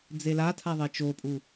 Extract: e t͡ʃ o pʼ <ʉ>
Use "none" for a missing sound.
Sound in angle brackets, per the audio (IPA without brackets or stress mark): u